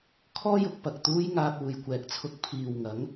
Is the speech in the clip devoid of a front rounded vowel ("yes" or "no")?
yes